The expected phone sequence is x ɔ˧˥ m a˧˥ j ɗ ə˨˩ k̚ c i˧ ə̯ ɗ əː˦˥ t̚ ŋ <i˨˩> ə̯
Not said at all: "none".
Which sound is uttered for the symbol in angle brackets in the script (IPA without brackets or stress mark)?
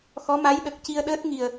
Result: i˨˩